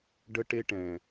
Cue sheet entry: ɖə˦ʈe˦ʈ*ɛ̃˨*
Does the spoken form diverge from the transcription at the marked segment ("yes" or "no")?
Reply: no